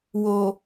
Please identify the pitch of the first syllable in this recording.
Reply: low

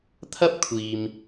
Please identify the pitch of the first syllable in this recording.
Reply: high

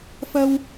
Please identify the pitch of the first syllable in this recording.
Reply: high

